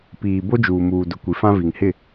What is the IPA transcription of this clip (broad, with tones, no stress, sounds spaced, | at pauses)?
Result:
p iː˨ b o˦ d͡ʒ uː˨ m uː˨ d ʊ˨ kʷ i˨ f ã˦ v i˨ ŋ h ɪ˦˨